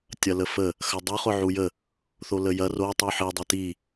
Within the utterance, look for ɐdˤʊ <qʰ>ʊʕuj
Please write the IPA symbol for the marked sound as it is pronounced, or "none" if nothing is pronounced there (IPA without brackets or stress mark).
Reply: χ